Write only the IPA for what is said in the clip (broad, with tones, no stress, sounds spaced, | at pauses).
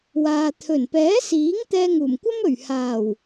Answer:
w aː˨ t̪ʰ ɵ˨˩ n p ɛː˨˥ s iː˨˥ ŋ t̪ ɛː˧ ŋ uː˨˩ m kʷ ɐ˥ m ɵ˨˩ ɥ h aː˨˩ w